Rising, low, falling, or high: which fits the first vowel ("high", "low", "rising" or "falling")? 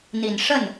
low